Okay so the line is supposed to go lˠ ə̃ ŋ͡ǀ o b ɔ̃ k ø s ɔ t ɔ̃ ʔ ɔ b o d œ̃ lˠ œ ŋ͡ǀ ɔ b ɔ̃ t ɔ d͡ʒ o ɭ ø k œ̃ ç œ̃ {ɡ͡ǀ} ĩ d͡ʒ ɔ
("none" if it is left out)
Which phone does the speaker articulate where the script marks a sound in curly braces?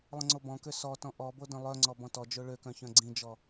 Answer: ɡ͡ǀ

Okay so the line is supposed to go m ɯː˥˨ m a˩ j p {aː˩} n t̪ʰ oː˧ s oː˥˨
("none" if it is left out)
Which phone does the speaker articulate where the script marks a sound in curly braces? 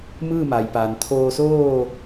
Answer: aː˩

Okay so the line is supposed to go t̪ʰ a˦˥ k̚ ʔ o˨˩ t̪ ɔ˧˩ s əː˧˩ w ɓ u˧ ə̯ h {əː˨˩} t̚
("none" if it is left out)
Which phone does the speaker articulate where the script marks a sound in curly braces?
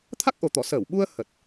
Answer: ə˨˩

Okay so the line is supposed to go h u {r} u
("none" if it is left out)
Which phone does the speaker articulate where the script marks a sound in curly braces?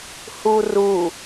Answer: r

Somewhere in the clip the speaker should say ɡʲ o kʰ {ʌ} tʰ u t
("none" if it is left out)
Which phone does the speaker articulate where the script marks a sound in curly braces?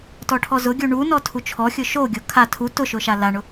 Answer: a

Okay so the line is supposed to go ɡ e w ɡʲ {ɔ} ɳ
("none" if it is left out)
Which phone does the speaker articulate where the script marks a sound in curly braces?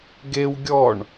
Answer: ɔ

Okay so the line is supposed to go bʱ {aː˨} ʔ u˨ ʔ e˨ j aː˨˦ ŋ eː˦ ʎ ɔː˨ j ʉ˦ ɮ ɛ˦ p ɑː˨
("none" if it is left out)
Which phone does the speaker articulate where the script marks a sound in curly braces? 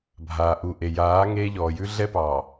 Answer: aː˨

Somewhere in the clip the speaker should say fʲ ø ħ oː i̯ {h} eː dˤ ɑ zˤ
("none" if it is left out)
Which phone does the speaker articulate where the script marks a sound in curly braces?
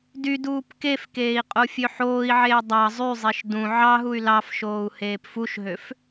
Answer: ʕ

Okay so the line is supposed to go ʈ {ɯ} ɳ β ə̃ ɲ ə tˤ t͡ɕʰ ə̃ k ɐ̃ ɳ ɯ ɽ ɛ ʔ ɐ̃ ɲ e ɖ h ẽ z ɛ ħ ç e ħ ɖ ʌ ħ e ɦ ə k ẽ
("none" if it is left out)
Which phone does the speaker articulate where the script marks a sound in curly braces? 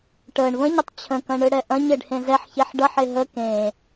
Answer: ə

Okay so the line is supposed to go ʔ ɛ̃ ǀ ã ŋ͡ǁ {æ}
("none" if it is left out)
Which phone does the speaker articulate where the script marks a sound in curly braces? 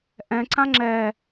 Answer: ɛ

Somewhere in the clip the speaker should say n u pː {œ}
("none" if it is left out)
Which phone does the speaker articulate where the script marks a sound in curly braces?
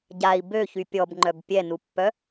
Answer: œ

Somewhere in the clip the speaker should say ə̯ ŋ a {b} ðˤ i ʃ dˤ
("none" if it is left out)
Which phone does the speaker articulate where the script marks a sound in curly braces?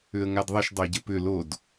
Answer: d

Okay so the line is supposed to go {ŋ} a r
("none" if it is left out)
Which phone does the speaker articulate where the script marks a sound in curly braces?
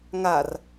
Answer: ŋ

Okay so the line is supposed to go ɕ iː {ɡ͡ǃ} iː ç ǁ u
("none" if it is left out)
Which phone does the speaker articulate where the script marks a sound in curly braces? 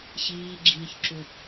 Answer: ɡ͡ǁ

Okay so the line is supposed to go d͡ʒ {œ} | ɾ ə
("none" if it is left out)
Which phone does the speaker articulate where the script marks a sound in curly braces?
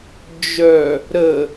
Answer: œ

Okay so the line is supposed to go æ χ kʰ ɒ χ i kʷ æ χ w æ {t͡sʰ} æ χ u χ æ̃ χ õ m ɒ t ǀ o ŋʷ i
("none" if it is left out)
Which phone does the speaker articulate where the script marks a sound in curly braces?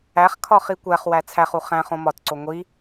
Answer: t͡sʰ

